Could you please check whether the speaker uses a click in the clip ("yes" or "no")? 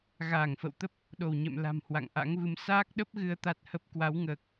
no